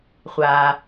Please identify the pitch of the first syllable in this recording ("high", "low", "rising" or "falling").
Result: low